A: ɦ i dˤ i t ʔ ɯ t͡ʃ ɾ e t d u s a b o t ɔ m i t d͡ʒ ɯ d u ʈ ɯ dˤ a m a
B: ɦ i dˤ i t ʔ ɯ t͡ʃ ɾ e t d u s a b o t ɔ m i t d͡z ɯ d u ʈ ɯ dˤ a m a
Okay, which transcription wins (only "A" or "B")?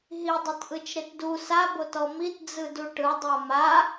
B